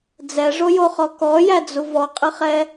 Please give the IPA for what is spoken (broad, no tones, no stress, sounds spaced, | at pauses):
d͡z ɛ ʐ o j o χ ɔ k ɔ j æ d͡z u v ɔ qʼ ɨ χ ɛ